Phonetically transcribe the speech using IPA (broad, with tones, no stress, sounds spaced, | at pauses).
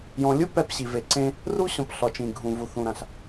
j ɔ̃˨ lʲ ɯ˥ p ɛ˦ p ɕ i˩ v e˨ ǀ ẽ˦ | r u˥ ɕ ɔ̃˨ p ɬ ɔ˩ t͡ʃ ĩ˩ ɡʱ ũ˩ v u˩ θ ũ˩ ɾ ã˩ ɬ